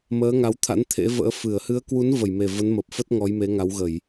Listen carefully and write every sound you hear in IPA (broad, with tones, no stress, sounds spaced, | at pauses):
m əː˨˦ ŋ a˨˦ w t̪ʰ a̰˧˥ n t̪ʰ ḛ˧˥ v ə̰ː˧˥ f ɨ˧˩ ə̯ h ɨ˨˦ ə̯ k w u˨˦ n v ə˧˩ j m e˨˩ v ə˨˦ n m ə˨˩ p̚ f ə˦˥ t̚ ŋ ɔ˨˦ j m e˨˦ ŋ a˨˦ w ɣ ə˧˩˨ j